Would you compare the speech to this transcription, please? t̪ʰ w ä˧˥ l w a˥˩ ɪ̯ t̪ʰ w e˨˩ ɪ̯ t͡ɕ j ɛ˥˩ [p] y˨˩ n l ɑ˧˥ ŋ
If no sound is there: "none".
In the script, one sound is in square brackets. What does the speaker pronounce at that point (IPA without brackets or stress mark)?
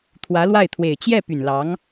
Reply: p